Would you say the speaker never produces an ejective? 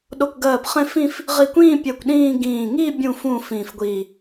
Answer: yes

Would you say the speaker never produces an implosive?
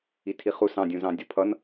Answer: yes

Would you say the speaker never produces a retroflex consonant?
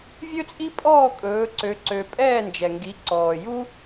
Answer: yes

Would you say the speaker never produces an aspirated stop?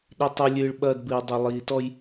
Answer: yes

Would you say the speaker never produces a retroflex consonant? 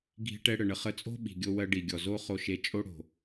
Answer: no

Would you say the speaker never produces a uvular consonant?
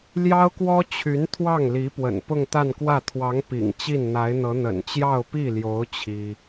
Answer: yes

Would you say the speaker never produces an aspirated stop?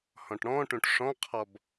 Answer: no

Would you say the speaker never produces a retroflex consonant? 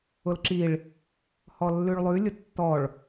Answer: no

